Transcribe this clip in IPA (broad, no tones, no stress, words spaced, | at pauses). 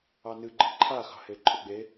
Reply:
ɑnɨ ɡ͡ǃɨǃʰaxɑ̤ heǃʼɵɡ͡be